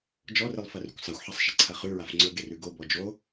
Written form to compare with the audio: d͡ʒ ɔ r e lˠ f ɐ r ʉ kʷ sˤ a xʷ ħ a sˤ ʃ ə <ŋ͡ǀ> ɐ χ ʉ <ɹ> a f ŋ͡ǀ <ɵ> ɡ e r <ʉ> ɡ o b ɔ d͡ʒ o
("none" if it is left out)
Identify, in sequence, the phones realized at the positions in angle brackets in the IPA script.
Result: ǀʰ, ɹ, ɵ, ʉ

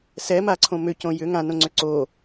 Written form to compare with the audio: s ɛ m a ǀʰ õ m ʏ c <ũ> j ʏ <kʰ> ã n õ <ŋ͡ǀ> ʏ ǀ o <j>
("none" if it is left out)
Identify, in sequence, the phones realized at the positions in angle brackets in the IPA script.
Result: õ, ŋ, ŋ͡ǀ, none

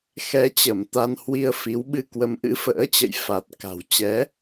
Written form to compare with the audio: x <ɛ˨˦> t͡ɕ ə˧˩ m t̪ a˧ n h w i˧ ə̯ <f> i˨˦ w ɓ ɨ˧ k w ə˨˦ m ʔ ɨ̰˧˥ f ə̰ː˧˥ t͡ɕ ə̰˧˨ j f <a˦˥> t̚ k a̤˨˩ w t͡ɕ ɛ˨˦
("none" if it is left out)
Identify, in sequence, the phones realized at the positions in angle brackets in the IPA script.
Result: ɛ˨˦, f, a˨˩

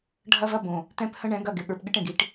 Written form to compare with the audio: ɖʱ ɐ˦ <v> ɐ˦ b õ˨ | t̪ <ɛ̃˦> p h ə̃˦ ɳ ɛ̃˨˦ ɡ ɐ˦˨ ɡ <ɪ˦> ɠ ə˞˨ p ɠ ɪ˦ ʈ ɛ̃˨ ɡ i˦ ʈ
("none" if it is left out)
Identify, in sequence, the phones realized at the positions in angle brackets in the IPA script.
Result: v, ɛ̃˦, ɪ˨

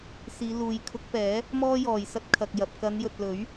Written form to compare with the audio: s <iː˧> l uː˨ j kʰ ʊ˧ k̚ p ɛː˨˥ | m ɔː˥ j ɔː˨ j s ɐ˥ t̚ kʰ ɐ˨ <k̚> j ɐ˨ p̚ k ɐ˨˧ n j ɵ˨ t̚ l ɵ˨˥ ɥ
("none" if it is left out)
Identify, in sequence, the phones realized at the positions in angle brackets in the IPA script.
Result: iː˨˧, k̚

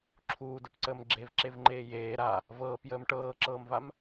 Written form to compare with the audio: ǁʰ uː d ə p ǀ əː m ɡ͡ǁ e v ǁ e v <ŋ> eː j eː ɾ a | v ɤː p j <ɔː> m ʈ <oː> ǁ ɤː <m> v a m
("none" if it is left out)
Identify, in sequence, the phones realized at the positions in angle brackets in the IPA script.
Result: ŋ͡ǃ, əː, ɤː, m

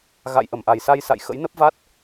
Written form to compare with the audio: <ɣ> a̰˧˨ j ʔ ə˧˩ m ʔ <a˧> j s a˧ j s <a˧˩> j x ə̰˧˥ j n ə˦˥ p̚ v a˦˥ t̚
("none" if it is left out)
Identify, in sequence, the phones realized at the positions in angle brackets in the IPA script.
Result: ɣ, a˨˩, a̰˧˨

